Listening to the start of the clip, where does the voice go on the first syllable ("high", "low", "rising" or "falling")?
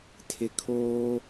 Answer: low